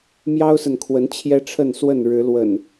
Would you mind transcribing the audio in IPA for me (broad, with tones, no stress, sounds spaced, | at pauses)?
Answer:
m j ɑ˦ ʊ̯ s ə˨ n kʰ w ə˨˦ n t͡ɕʰ j ɛ˦ ʈ͡ʂʰ ə˥˨ n s w ə˥˨ n ɻ ɻ̩˨˦ l w ə̰˨˩ n